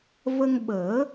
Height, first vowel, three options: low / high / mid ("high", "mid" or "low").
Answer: mid